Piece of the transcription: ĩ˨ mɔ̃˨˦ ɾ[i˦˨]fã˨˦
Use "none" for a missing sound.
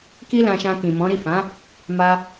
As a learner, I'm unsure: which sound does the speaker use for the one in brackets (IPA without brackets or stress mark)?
i˦˨